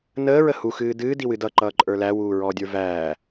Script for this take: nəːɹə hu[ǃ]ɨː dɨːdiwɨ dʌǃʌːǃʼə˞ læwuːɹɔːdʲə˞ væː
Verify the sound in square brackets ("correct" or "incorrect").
incorrect